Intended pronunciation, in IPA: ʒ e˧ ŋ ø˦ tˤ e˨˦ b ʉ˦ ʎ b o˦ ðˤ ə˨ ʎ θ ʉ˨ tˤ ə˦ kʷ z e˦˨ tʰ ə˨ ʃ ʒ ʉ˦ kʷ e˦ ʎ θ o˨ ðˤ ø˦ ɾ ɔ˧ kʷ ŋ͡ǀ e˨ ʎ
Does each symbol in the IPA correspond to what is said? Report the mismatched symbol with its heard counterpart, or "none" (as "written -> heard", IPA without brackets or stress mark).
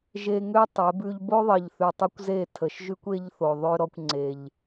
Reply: none